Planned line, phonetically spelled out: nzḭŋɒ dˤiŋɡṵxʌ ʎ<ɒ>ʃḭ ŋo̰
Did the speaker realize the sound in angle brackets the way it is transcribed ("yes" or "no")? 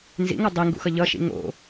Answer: no